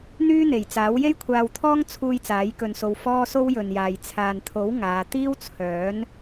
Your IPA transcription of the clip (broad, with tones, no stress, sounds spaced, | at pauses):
n̪ yː˥ n̪ e˨˩ j t͡s aː˨˥ w j e˥ j kʷʰ aː˧ w t̪ʰ ɔː˥ ŋ t͡sʰ uː˧ j t͡s aː˨˥ j k ɵ˧ n s o˧ w f ɔː˥ s o˥ w j ɵ˨ n j aː˨ j t͡sʰ aː˨ n t̪ʰ o˨˥ w ŋ aː˨˧ t̪ iː˥ w t͡sʰ œː˨˥ n